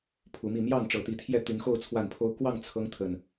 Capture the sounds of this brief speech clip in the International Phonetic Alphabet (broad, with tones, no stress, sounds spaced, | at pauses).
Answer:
pʰ u˨˦ m i˥˨ m j ɑ˥˨ ŋ ʈ͡ʂ ɤ˨˦ t̪ i˨˦ t̪ʰ j ɛ˥˨ t̪ y˨˦ n x o˥˨ ʊ̯ t͡sʰ w a˥˨ n pʰ o˦ ʊ̯ k w ɑ˥˨ ŋ t͡sʰ ɤ˦ ŋ t̪ʰ ə˨˩ n